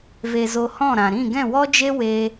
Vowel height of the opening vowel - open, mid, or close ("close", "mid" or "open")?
mid